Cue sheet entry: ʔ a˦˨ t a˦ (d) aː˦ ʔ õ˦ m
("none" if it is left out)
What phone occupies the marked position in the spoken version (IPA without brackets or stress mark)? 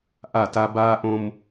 b